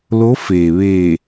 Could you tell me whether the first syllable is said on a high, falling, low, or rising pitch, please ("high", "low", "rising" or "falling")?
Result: rising